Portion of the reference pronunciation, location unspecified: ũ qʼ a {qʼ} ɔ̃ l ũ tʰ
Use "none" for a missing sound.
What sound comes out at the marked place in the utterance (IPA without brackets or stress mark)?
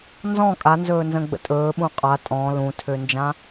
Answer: tʼ